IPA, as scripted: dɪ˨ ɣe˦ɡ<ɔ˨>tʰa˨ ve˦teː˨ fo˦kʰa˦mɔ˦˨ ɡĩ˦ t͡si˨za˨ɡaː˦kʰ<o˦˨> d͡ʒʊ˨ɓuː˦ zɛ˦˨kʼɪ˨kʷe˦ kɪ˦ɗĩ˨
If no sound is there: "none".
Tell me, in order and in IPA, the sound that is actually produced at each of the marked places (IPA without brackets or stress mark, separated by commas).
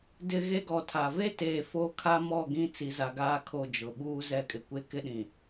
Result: ɔ˨, o˦˨